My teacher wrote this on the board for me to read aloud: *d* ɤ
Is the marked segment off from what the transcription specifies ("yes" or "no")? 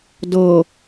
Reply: no